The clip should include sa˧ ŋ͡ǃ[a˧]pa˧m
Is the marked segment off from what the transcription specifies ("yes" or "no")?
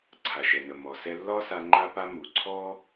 no